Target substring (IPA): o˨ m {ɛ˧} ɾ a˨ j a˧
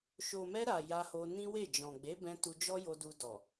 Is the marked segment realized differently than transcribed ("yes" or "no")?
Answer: no